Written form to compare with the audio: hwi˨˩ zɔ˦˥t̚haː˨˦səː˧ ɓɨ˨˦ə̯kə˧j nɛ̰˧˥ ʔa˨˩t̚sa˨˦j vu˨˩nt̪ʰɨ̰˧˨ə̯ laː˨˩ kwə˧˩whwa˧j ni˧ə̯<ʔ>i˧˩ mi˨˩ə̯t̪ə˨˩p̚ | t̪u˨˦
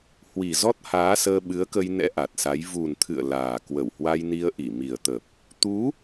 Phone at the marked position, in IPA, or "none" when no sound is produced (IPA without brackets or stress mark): ʔ